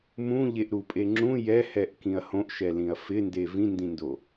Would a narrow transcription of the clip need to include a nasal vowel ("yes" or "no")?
yes